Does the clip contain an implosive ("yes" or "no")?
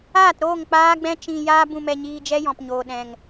yes